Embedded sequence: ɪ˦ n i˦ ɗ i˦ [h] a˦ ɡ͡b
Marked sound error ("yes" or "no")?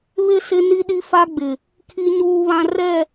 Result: yes